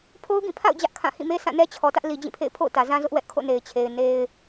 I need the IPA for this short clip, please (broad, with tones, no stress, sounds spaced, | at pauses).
pʰ o˦ ʊ̯ ɡ ĩ˦˨ pʰ a̰˦˨ ʊ̯ d͡ʑ ä˦ ʔ kʰ ã˦˨ h ĩ˦˨ m e˦ s ã˦˨ n ɛ˦ t͡ɕʰ ɔ˨ t ä˦ ʔ l i˨ d͡ʑ ĩ˦˨ pʰ ḛ˦˨ ɪ̯ pʰ o̰˦˨ ʊ̯ t ä˨ z ã˦ z ʊ˦ ʔ w ɛ˦ ʔ kʰ o̰˦˨ n e˨ ɪ̯ t͡ɕʰ e˨ ɪ̯ n e˦ ɪ̯